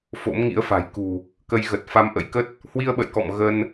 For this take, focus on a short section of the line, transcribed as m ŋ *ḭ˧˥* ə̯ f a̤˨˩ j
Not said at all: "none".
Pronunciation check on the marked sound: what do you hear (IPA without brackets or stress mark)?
ḭ˧˥